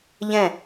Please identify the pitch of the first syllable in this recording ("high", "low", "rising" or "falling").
falling